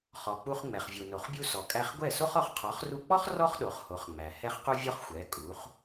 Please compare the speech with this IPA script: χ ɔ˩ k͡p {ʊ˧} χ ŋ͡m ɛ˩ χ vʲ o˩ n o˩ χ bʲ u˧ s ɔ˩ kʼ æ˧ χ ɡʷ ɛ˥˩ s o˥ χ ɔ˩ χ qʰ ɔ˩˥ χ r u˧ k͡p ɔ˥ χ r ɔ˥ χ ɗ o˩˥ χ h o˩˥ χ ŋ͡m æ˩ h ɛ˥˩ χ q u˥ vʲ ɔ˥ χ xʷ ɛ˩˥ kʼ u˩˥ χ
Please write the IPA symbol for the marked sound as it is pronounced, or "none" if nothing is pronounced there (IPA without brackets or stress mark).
u˧